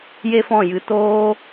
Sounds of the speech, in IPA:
j e˦ f ɔ̃˦˨ j ɨ˧ t oː˧

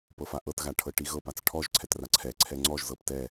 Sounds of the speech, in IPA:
p ɤ f a ʔ ɤ t ɣ a ʈʰ ɤ ʈ i ɣ ɤ p a t͡s ʈʰ ɔ ʒ ǀʰ ɛ t r a ǀʰ ɛ ǀʰ ɛ ŋ͡ǀ ɔ ʒ z ɤ p t ɛ

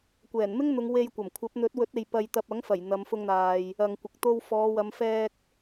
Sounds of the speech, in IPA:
kʷ ɛː˨˩ n m ɪ˥ ŋ n̪ ʊ˨˧ ŋ w e˧ j kʷ ɐ˨˩ m kʷʰ ɐ˨˥ p̚ n̪ ɵ˨˥ t̚ w ɵ˨˥ t̚ e˨ j p ɐ˧ j t̪ ɐ˧ p̚ ɐ˨˥ ŋ f ɐ˨˩ j n̪ ɐ˨˧ m f ʊ˧ ŋ n̪ aː˨ j | ɐ˨ ŋ kʷ ɪ˨ k̚ t̪ o˧ w f ɔː˨˧ w ɐ˨˧ m f ɛː˧ k̚

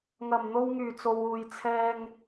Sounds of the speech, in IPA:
ŋ ɐ˨˩ m n̪ o˧ w ŋ yː˨˩ t͡s o˨ w uː˨ j t͡sʰ ɛː˧ ŋ

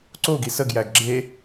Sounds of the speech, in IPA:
ǀ o ɡ i s ə ɡ j æ ɡ ɡ͡ǁ e

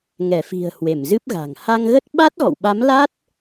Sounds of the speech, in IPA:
ŋ ɛ˧˩ f i̤˨˩ ə̯ h w e˧˩ m z ɨ˦˥ p̚ ɣ a̤˨˩ ŋ h a˧ ŋ ɣ ə˦˥ t̚ ɓ a˦˥ t̚ ɣ ɔ̰˧˨ w ɓ a˨˦ m l a˦˥ t̚

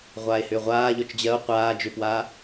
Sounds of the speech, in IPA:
ʁʷ aː e̯ h ʏː ʁʷ aː ʎ ɔ t͡ʃ d͡ʑ ɜ o̯ qʷ aː d͡ʒ ʏ p w aː

